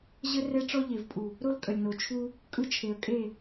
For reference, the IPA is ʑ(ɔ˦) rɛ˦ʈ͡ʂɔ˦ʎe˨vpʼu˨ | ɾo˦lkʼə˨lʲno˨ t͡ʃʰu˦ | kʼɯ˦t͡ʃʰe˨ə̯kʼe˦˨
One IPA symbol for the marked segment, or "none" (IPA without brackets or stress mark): ə˦